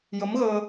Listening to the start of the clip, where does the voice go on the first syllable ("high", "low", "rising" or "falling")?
rising